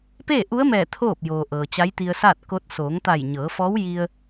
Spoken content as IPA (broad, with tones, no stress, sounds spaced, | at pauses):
p eː˥˨ ʔ u˧˥ ə̯ m ɛː˧˩ t̪ʰ oː˥˨ p̚ j oː˩ ʔ ɤː˩ t͡ɕ a˧˥ j t̪ i˧ ə̯ s aː˥˨ t̚ k o˧˥ t̚ s oː˩˧ ŋ t̪ a˧˩ j ɲ ɤː˩˧ f ɔː˧˥ w j i˧ ə̯